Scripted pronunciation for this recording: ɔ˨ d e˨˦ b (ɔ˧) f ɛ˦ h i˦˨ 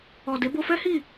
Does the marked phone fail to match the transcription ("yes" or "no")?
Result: yes